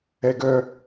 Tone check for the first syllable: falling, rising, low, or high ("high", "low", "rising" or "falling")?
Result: high